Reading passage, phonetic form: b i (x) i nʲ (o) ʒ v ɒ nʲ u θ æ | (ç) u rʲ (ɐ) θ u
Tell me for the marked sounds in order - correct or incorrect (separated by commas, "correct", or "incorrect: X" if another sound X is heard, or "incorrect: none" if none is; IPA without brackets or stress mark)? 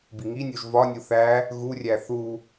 incorrect: ŋ, correct, incorrect: ɣ, incorrect: æ